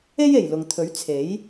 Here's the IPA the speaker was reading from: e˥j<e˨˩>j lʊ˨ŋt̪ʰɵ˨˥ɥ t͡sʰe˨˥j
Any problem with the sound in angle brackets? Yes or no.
no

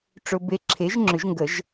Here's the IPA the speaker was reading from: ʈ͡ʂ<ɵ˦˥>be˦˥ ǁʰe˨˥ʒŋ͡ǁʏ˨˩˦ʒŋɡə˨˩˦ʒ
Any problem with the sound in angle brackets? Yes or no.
no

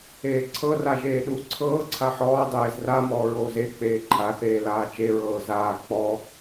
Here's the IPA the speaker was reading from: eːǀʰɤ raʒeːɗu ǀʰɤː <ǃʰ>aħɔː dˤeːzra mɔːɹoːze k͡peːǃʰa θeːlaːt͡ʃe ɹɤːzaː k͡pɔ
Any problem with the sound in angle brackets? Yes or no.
yes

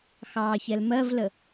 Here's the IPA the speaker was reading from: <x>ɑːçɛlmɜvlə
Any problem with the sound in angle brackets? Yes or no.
no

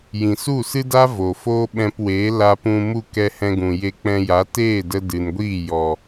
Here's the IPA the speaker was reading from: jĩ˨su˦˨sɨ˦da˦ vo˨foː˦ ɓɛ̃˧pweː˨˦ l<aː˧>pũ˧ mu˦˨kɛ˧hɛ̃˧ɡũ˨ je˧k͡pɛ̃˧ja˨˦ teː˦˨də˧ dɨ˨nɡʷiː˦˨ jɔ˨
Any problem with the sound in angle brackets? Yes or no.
yes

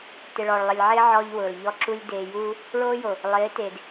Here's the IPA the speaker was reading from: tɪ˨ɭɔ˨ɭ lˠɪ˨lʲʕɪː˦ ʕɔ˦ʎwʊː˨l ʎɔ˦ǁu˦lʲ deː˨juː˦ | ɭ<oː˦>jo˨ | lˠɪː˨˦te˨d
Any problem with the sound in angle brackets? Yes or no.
no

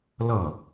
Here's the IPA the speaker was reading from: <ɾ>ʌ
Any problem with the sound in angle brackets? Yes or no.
yes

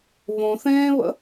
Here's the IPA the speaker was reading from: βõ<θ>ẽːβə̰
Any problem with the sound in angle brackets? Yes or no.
no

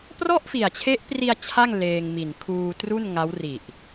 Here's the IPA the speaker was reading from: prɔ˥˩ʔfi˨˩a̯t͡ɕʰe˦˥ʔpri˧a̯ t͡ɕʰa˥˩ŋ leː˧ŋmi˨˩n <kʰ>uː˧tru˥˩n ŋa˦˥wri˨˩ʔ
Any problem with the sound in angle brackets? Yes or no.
no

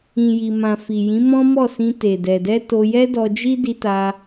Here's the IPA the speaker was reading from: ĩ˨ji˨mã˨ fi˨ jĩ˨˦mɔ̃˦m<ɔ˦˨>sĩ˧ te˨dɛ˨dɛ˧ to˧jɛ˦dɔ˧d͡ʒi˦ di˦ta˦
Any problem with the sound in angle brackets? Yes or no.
no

